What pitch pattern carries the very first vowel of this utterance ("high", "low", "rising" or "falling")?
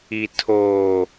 low